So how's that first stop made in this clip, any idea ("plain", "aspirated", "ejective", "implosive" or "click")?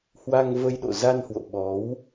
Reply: implosive